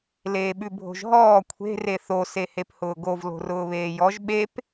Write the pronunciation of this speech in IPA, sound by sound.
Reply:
l eː ɓ ʉ bʱ o̤ ʒ ɦ ɔː kʷʰ e̤ r e θ o s e h e p h ʊː ɡ o v l o̤ r ʊː β eː j ɔ ʒ ɓ e p

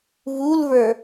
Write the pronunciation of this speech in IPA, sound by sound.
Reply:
v u l v ə˞

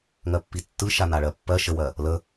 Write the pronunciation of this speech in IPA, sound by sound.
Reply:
ŋ ɜ pː i tː ɯ ʃ a n a ɭ ɜ pː ɜ ʃ ə w ɜ | l ə

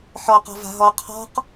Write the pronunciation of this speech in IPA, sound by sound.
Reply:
ħ ɔ q ɔ̤ v a̤ ɦ ɔ qʰ ɔ̤ q

